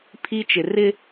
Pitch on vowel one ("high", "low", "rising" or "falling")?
high